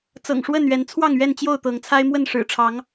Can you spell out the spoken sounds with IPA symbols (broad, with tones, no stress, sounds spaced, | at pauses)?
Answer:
t͡s ɤ̰˨˩ ŋ ʂ w ə˥˨ n ɥ ɛ˨˦ n t͡sʰ w ɑ˥˨ ŋ ɥ ɛ˥˨ n t͡ɕ j o˥˨ ʊ̯ t̪ ɤ˨˦ ŋ t͡sʰ a˦ ɪ̯ m w ə˥˨ n ʂ ɻ̩˨˩ ʈ͡ʂʰ ɑ˨˦ ŋ